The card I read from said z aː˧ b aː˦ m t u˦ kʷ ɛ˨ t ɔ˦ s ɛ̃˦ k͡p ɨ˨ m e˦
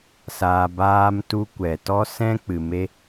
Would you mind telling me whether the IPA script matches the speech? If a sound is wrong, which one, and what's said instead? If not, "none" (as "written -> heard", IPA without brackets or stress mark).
z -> s